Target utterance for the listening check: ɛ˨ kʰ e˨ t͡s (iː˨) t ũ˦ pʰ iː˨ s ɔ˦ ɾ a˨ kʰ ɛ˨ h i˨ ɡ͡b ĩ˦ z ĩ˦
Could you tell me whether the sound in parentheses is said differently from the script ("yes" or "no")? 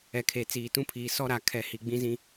no